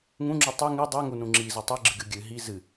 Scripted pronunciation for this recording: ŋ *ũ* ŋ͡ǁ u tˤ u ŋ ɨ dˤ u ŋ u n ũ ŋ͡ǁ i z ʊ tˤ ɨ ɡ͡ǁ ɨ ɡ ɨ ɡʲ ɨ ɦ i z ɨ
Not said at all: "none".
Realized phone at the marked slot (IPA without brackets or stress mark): ũ